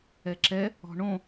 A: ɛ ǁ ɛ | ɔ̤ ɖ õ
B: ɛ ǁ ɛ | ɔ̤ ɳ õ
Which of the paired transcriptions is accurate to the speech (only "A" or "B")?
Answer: B